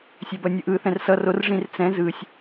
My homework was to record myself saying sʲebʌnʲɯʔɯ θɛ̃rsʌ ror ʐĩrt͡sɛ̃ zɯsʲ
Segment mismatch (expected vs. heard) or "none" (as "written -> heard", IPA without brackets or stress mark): none